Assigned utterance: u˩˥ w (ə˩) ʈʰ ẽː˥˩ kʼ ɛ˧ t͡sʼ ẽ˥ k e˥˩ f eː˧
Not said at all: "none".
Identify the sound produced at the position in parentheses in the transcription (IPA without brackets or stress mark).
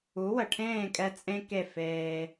ə˩